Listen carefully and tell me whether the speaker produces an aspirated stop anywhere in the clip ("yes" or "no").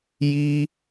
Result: no